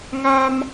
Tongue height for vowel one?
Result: low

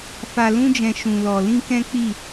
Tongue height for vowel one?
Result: low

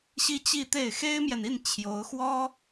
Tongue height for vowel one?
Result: high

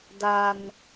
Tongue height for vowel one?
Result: low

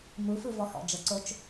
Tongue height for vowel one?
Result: high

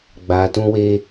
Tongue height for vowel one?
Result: low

